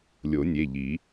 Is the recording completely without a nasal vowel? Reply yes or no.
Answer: yes